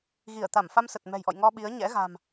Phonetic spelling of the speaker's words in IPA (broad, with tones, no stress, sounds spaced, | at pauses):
ɣ i˧˩ ə̯ t̪ a˧˩ m f a˧ m s ə˨˩ t̚ m ɛ̤˨˩ j ʔ ɔ̰˧˨ j ŋ ɔ˧ ɓ i˨˦ ə̯ ɲ ɛ̰˧˥ ɣ a̤˨˩ m